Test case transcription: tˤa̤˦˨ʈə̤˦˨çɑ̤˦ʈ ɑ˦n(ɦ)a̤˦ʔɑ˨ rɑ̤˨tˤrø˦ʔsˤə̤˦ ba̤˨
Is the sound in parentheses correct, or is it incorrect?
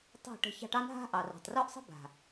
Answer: correct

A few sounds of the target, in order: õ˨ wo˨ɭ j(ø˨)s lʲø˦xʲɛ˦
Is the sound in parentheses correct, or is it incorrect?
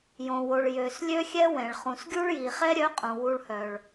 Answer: correct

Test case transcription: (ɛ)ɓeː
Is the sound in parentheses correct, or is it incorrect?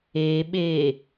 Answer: incorrect: e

